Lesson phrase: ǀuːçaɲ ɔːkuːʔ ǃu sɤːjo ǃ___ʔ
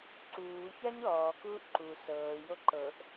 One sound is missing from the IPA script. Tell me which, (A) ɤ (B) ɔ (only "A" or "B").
A